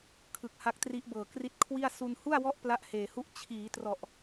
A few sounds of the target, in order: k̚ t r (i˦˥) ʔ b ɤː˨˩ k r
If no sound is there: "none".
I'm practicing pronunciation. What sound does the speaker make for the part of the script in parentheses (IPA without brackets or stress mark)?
i˦˥